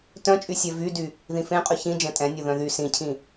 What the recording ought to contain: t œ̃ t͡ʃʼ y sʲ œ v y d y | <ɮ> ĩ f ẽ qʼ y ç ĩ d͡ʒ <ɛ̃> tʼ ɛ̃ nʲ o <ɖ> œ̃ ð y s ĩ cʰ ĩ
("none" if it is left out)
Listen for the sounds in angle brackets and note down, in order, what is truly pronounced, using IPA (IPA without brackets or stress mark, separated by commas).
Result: ð, ɛ̃, ð